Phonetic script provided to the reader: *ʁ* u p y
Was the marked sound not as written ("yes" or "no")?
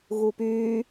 yes